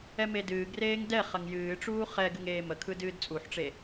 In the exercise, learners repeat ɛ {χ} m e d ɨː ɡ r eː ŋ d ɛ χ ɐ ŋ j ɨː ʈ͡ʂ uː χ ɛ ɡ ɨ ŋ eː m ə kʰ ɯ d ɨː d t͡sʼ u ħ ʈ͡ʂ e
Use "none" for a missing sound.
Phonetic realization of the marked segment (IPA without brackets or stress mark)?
none